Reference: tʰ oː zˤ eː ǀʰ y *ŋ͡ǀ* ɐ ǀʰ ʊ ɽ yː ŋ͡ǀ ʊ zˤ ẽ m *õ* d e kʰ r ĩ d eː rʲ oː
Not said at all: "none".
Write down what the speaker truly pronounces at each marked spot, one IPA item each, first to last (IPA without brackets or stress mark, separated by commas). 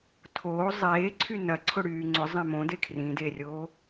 n, õ